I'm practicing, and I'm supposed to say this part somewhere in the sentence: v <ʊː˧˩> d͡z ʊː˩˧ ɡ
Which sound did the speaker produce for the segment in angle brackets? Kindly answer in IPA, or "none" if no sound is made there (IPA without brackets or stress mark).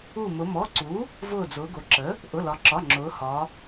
ʊː˧˩